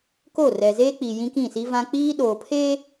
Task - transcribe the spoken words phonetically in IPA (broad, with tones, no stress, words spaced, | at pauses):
ko˦˨rɛ˨ zeː˦k͡pi˨ jĩ˦kĩ˦˨si˦ vã˦ k͡piː˦ɗoː˨pʰeː˦